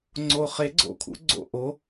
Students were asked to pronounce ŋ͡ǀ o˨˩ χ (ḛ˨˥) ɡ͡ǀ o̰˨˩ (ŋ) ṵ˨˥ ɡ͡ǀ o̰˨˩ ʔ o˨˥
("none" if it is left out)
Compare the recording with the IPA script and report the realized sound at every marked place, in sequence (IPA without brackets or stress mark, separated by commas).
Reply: e˨˥, kʰ